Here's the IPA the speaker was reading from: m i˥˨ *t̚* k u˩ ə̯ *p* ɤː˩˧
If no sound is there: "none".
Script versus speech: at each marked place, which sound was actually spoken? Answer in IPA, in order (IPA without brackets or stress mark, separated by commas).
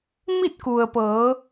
t̚, p